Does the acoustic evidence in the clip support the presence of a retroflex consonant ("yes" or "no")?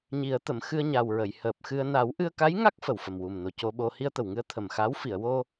no